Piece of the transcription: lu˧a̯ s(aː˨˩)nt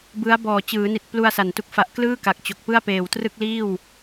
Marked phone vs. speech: incorrect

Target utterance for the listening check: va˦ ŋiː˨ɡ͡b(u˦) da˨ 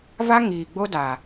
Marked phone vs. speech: incorrect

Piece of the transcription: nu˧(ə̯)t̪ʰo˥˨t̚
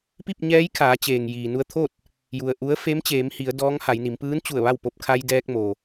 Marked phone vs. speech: correct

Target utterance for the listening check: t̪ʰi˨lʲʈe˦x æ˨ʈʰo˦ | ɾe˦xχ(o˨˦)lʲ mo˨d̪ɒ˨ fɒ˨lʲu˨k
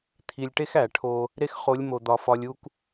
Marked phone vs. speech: correct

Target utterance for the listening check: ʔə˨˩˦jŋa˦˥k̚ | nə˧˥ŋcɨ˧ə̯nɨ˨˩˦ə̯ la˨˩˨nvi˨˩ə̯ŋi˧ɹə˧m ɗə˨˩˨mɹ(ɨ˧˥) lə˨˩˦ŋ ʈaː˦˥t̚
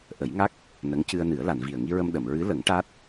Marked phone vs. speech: correct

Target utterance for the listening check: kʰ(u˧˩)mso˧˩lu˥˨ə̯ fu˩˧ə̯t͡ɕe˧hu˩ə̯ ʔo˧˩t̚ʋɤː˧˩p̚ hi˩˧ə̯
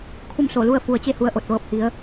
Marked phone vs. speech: incorrect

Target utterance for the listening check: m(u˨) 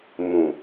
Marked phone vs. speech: incorrect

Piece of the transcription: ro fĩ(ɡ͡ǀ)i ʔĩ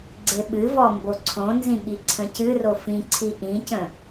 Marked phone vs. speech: incorrect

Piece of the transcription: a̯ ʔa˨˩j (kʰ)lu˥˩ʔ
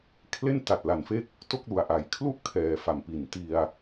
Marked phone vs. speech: correct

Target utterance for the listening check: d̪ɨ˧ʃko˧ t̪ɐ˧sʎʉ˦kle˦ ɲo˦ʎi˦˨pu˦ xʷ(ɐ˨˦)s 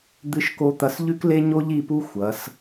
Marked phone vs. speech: correct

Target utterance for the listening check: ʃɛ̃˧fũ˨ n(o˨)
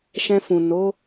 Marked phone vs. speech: incorrect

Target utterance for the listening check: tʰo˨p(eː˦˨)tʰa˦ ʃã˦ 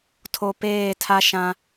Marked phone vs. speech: correct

